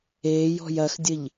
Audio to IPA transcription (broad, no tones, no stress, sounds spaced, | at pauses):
eː j ɔ̤ j ɐ x dʲ ə ʎ